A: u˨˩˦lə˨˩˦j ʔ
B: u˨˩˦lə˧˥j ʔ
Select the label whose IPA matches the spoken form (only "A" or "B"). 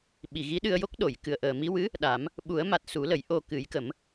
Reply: A